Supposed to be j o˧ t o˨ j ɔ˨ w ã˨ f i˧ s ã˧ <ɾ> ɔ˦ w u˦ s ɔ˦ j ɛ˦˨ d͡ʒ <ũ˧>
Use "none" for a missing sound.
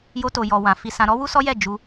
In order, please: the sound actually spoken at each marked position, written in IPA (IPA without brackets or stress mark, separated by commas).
ɾ, u˧